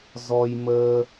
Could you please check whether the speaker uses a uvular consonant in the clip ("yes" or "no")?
no